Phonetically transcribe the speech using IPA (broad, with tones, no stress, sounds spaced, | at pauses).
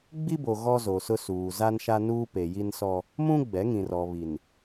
ɡ͡b i˦ b o˨ ɣ ɔ˦ z o˨ s ʊ˦ s uː˨ z a˦ n ʃ a˦ n uː˦ p e˨ j i˦ n s ɔ˦ | m ũ˦ ɡ͡b ɛ˨˦ ŋ ĩ˨ r ɔ˨ β i˨ n